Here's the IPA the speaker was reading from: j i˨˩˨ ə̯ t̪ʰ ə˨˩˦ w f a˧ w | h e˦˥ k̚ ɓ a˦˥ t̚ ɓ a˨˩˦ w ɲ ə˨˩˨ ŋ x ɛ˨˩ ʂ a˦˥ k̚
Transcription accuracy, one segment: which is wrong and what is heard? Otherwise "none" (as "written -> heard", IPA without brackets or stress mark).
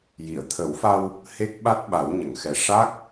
none